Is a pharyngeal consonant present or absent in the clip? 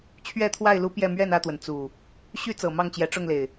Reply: absent